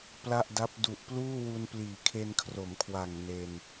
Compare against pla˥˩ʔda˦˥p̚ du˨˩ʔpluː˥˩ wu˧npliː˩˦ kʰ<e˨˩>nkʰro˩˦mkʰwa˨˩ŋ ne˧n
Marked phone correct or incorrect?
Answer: incorrect: e˧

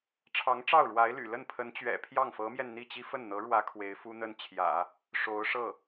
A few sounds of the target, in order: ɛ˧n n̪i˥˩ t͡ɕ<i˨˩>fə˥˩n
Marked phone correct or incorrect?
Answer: incorrect: i˥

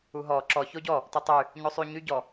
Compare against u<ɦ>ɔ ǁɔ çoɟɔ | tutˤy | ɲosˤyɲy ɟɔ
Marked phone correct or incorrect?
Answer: correct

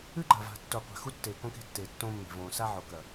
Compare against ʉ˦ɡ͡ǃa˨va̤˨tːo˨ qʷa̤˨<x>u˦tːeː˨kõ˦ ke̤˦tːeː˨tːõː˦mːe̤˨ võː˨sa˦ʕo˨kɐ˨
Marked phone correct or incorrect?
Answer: correct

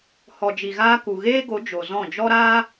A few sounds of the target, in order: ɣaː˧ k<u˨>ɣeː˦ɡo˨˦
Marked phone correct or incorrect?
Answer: correct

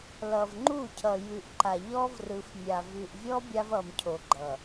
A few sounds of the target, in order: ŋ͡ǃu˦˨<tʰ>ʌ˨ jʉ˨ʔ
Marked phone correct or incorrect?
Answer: incorrect: cʰ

